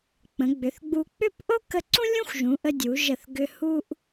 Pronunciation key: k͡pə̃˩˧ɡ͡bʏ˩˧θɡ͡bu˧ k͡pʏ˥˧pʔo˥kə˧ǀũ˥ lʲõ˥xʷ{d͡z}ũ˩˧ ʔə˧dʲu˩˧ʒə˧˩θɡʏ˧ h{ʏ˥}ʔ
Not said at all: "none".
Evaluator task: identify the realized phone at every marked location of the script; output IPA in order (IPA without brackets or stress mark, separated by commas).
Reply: ʒ, u˥